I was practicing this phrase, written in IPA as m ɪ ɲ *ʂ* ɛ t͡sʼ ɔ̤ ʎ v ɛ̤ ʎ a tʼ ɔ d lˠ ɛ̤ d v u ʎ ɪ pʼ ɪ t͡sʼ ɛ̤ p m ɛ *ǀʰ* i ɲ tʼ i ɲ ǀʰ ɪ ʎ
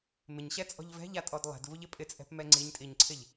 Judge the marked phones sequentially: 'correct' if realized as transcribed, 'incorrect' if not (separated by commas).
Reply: incorrect, incorrect